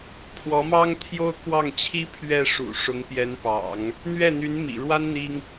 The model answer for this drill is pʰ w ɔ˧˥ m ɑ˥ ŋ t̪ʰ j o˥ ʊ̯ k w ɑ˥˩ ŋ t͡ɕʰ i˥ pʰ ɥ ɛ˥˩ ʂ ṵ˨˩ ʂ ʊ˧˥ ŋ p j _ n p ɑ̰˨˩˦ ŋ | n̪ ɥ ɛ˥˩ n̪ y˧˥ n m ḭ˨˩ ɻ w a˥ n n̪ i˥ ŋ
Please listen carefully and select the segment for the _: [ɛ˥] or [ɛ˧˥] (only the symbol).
ɛ˧˥